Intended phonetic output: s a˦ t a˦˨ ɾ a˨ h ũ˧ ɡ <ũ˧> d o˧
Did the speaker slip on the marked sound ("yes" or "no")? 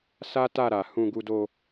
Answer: yes